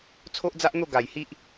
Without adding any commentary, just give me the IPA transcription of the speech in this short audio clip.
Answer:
t͡sʰo˦ʔd͡za˦ʔn̪o˥˧ ɡa˨˩jhi˦ʔ

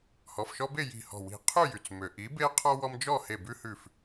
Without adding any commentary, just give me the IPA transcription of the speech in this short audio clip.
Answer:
hɔ˩˧˩fʃɔ˦be˥˨ ji̤˧˩hɔ̤˧˩ wi̤˧˩ qʰy˥˨jy˩t͡smø˩ ʔi˨˥be˦qʰɔ˦ wɔ˦md͡ʒɔ˥˨ he˧˩bʉ˦hʉ˧˩f

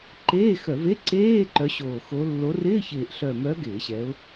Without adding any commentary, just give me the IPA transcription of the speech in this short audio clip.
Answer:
ǃeː˧˥˧xœ˧˩˧ve˧˥˧ ǀeː˧˥˧ ǃœ˨˦ɕoː˨˩ xo˨˦ lːo˨˦rɪː˧˥˧çɪː˨˩ʔ ɬœ˨˩mœ˨˦ ɡɪː˧˩˧ɕɛ˨˦ʊ̯

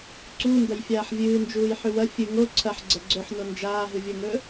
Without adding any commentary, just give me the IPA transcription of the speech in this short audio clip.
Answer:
ǀu ndɐjfʲaːħvʲɨːnd͡ʒuːj ħʉwɐ fʲɨ ŋo ǀʰɐħ ɡ͡ǀɐɡ͡ǀɵħno nd͡ʒaːɦɨvʲoŋɵ

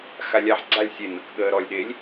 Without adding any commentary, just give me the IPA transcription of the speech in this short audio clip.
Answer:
xalʲaħ ɡ͡ǀalʲ sʲenɐk ɠəːɾɔlʲ ɗelʲ

